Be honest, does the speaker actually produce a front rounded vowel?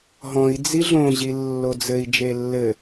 no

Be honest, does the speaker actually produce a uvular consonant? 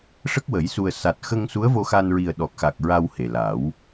no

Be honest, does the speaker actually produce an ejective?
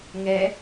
no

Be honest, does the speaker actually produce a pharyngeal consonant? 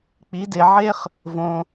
yes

